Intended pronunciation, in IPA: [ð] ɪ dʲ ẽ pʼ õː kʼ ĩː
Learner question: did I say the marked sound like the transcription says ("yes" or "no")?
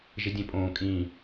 no